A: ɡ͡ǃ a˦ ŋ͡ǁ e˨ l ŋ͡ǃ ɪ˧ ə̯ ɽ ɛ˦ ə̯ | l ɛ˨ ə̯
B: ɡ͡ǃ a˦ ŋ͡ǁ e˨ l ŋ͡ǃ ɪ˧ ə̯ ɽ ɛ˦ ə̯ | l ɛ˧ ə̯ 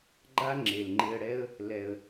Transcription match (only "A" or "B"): A